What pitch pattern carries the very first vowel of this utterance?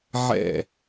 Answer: falling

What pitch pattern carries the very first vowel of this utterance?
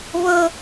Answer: high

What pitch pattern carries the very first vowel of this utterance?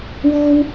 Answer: high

